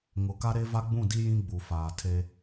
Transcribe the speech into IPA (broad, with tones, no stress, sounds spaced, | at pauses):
ŋ ʊ˨ k a˦ ɾ e˦ v a˦ ɡ͡b ũ˦˨ d i˦ j ĩ˦ ɡ͡b u˨ f aː˨ tʰ e˦